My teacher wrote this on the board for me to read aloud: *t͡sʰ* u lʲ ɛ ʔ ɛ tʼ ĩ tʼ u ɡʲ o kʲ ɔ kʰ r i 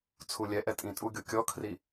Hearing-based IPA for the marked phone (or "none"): t͡sʰ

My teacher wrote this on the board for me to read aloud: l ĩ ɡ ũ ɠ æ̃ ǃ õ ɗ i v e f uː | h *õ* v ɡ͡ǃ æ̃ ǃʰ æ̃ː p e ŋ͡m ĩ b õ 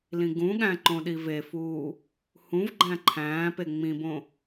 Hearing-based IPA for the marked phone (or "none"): ũ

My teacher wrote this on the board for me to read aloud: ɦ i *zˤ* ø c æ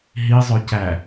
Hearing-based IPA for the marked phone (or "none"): zˤ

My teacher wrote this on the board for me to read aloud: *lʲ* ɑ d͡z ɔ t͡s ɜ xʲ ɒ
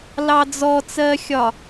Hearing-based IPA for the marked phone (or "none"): l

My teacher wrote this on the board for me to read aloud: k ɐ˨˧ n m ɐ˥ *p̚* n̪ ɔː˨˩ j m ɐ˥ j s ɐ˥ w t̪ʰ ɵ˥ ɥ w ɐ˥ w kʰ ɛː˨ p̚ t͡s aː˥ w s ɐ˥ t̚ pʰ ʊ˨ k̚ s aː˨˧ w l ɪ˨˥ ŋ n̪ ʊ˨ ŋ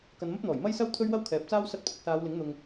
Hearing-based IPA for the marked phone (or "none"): p̚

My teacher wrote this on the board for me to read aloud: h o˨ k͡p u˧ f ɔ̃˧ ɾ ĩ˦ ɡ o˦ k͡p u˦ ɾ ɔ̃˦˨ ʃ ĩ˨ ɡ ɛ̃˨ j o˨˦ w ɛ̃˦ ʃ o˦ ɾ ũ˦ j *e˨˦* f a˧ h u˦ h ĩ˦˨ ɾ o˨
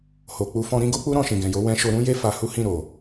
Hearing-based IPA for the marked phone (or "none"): e˦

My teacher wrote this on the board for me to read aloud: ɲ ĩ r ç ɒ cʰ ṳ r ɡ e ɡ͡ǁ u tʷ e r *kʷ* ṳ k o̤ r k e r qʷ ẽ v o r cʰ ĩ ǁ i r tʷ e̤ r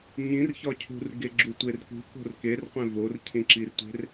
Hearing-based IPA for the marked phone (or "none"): k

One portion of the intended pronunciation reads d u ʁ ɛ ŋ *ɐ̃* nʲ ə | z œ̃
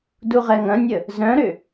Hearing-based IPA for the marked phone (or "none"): ɐ̃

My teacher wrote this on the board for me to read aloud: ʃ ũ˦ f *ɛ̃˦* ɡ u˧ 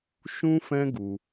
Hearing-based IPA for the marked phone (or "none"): ɛ̃˦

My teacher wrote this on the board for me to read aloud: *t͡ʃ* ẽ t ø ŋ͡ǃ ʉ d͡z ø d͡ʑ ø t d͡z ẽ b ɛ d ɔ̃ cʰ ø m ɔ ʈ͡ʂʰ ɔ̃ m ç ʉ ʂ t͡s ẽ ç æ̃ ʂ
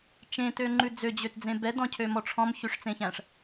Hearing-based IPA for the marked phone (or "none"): t͡ʃ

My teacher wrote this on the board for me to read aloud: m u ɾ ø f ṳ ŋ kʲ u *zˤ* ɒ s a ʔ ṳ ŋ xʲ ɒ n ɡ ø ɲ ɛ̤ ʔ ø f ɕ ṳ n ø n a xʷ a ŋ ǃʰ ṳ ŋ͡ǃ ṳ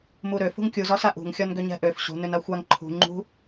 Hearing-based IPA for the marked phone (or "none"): z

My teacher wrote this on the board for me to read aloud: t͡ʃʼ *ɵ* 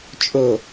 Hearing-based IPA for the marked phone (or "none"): ɵ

